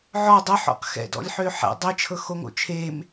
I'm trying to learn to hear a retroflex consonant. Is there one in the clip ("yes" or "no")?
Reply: no